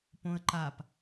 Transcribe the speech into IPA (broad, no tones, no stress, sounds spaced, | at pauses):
p õ ə̯ ǃ a p